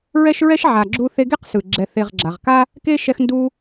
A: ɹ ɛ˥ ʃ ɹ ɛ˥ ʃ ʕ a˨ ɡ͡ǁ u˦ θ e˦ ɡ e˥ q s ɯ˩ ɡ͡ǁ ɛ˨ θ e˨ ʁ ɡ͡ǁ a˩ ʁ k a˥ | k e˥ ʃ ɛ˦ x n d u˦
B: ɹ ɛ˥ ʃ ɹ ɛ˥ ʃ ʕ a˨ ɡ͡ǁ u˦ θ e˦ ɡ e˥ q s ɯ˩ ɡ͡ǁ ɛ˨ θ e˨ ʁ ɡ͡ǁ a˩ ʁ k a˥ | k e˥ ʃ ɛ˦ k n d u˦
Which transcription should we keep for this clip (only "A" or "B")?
A